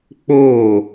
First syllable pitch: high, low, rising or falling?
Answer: falling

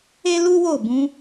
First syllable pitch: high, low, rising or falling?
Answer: high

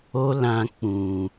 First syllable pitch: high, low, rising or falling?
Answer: high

